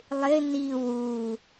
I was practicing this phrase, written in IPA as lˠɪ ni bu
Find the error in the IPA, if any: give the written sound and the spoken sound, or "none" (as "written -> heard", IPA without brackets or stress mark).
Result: b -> w